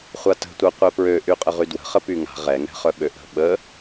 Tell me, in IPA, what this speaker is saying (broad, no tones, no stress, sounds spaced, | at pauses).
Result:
χʷ a t ə̤ tʷ œ qʷ ɛ p ɹ ø ʔ y qʼ ə ʁ y d w ə̤ χ ə p y ŋ a̤ ʁ ɛ ŋ ɛ̤ χ œ ɓ ø ʔ ə̤ ɓ ə